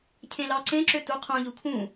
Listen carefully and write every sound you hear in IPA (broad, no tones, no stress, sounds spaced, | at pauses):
cʰ ẽ l ɑ ǀ ẽ ǁ ø t u qʰ ũ ʎ u kʰ ũ